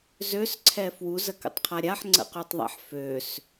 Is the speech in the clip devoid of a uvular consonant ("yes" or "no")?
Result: no